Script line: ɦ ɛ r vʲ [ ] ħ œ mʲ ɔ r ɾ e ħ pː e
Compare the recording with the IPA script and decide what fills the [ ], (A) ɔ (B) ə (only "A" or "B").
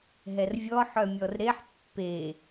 A